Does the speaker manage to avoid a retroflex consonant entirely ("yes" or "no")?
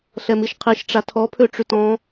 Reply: no